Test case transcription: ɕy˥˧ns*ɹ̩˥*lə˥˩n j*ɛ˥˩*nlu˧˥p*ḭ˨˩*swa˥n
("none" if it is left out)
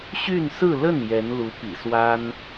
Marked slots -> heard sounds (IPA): ɹ̩˥˧, ɛ˧˥, ḭ˨˩

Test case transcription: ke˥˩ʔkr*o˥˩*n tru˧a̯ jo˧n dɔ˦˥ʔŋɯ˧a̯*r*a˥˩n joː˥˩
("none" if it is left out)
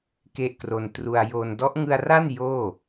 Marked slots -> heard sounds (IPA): o˧, r

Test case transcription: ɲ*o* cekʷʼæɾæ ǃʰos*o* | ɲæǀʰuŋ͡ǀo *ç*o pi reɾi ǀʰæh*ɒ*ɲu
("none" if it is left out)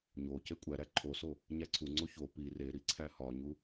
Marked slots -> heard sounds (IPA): o, o, ç, ɒ

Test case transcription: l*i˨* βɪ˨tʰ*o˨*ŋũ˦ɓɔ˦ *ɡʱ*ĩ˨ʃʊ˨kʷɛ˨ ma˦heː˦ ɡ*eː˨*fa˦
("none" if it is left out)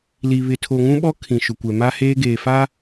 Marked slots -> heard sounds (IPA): i˨, o˨, kʰ, eː˨

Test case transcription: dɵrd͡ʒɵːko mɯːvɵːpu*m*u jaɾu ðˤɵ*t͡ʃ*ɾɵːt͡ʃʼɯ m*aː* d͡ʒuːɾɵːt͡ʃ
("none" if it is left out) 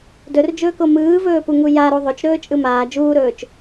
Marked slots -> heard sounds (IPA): ŋ, t͡ʃ, aː

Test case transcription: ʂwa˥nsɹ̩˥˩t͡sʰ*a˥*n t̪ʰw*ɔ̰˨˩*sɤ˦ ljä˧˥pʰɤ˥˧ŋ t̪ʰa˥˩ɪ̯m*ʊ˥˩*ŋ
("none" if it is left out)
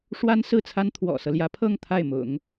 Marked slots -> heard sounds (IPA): a˥, ɔ̰˨˩, ʊ̰˨˩˦

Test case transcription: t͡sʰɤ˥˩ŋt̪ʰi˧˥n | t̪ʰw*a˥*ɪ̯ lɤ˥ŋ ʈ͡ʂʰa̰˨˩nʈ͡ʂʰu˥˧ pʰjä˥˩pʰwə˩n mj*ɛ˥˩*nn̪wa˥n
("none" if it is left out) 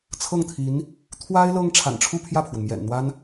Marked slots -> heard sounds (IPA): a˥, ɛ̰˨˩

